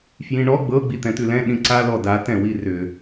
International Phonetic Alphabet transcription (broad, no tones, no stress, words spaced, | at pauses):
fjĩɳɔ ɡ͡bɤ ɡ͡bit̪ɛ̃t̪ʉlɛ̃ ɗĩǀa lɔda tɛ̃wirʏ